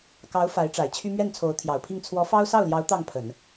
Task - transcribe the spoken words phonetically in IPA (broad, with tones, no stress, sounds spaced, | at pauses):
k ɑ˧˥ ʊ̯ f a˧˥ ɪ̯ ʈ͡ʂ a˨˩ ɪ̯ t͡ɕʰ y˥ m ɥ ɛ˥˩ n t͡sʰ o˧˥ ʊ̯ t̪ʰ j ɑ˨˩ ʊ̯ pʰ i˥˩ ŋ t͡sʰ w ɔ˧˥ f ɑ˥ ʊ̯ s ɑ˥˩ ʊ̯ l j ɑ˧˥ ʊ̯ t̪ ɑ˥˩ ŋ pʰ ə˨˩˦ n